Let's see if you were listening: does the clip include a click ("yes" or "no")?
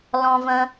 no